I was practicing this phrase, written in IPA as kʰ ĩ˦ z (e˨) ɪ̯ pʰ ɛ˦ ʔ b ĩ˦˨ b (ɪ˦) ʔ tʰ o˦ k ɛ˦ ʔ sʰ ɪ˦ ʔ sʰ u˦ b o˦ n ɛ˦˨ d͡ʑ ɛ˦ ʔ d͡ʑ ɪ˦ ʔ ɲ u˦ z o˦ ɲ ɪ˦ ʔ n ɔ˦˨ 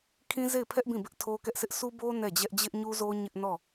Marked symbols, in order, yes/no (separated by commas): no, yes